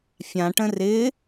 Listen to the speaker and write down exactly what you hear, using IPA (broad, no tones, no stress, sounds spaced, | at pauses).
fʲ ã ʈ ə̃ r ɪ